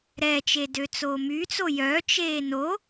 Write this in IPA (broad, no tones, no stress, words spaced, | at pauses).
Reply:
ɾɛt͡ʃe døt͡soːmyt͡so jœt͡ʃeː no